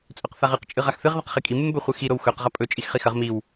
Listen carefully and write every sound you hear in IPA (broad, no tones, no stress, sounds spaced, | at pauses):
t͡sʼ ɵ q θ a ʁ ɨ q t͡ʃʼ ɨ ʁ a x θ ɨ ʁ ð ɐ q χ i kʼ i m ɨ m b ɵ χʷ ɨ x i ɾ o w x ɵ q ʁ ɐ pʼ ɵ t͡ʃʼ i x χ i x ɐ ʁ m i w